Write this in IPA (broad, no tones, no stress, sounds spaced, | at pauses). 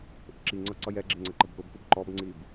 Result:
ʔ ʊ ǁ i ŋ͡ǀ ʌ ǀ ʌ j ɛ ɡ͡ǁ ɪ ŋ͡ǀ ə ǃ ə b k ʊ b k ʊ b ǃ ɔ b ŋ͡ǀ i b